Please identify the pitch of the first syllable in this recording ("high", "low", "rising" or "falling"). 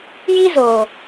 high